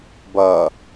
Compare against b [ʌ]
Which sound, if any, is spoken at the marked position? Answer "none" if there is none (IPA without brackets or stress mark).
ʌ